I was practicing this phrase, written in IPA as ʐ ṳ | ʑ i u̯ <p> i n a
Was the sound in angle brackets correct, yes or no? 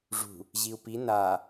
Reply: yes